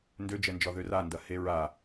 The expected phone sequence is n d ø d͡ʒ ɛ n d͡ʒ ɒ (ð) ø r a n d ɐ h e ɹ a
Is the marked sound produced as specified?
yes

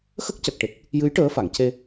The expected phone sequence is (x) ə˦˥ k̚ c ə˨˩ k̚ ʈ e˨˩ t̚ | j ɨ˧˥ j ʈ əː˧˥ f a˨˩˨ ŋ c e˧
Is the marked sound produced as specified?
yes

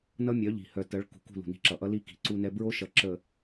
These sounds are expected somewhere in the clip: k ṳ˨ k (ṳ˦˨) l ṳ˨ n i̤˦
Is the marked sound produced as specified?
yes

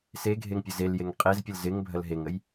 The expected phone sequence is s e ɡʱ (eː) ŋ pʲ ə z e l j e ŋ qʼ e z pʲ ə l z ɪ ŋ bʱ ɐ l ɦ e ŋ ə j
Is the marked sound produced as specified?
no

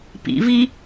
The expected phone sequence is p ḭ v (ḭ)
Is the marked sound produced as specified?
no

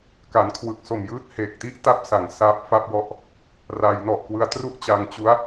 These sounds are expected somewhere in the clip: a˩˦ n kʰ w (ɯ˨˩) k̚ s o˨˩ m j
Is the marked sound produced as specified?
yes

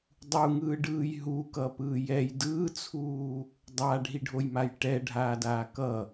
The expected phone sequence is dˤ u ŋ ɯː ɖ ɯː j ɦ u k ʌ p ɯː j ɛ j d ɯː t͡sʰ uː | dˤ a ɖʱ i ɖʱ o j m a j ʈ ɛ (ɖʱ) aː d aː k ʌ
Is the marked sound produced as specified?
yes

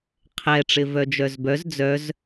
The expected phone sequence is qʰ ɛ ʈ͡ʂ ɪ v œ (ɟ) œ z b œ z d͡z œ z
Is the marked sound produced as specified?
no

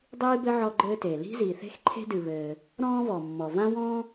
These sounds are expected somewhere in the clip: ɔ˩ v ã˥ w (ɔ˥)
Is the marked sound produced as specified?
no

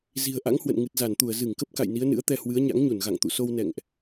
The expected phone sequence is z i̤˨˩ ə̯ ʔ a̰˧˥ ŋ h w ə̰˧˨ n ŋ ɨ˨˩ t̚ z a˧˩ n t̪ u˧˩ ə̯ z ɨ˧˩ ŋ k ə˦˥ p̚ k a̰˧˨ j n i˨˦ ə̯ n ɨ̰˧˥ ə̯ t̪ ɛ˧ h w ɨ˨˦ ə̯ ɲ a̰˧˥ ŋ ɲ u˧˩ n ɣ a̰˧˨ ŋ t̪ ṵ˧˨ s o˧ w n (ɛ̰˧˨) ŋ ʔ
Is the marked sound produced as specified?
yes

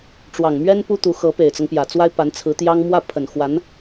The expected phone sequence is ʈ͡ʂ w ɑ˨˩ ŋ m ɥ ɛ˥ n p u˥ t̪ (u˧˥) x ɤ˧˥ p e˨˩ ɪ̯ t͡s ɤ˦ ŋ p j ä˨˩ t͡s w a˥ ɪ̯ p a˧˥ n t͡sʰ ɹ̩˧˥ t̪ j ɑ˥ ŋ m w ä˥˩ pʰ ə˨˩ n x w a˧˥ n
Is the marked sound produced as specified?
yes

